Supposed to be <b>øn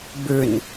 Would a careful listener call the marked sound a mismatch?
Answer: no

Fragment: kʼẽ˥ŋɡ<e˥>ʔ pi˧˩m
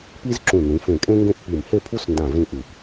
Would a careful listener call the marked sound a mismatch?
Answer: yes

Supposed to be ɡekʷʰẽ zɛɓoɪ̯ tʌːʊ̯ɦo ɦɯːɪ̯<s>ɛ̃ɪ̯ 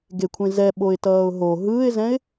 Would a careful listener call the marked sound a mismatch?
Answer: yes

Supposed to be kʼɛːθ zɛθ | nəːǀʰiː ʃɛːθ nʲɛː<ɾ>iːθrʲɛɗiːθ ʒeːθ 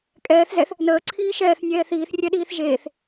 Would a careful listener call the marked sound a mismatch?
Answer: yes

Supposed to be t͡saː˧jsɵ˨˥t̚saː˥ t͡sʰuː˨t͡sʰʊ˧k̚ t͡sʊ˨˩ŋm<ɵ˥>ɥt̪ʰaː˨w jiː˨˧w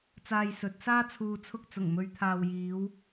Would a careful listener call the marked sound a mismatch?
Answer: yes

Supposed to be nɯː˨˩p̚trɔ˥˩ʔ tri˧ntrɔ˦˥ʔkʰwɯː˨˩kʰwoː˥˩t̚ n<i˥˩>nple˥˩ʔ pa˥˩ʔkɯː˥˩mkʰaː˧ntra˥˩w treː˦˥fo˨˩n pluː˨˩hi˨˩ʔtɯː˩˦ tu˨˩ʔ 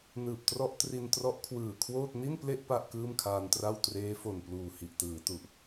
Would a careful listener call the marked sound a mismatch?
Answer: no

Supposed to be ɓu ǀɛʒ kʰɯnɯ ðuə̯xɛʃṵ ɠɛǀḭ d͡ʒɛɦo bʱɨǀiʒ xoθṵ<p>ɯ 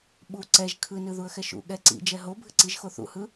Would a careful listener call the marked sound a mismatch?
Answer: yes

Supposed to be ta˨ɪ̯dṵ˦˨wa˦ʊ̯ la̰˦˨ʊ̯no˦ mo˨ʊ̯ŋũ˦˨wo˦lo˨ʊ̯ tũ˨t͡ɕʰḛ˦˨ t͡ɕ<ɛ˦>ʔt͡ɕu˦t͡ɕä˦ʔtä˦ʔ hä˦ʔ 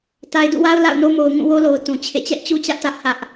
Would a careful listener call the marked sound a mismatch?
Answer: no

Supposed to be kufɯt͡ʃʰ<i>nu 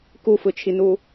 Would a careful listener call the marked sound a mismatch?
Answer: no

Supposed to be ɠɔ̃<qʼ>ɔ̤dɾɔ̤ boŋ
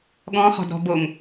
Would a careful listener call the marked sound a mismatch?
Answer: yes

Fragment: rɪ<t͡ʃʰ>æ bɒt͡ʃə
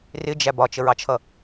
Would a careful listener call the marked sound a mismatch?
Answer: yes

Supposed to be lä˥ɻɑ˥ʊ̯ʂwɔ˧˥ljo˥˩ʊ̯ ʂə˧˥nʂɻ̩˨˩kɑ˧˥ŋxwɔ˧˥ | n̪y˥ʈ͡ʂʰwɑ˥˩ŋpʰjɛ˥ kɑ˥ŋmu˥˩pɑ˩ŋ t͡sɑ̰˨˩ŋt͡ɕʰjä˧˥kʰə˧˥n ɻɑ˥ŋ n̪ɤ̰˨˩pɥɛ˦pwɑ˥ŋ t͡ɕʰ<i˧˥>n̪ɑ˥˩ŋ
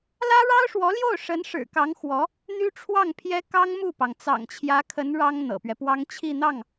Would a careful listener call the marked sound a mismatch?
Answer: yes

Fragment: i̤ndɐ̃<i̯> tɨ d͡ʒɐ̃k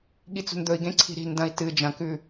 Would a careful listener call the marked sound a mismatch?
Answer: no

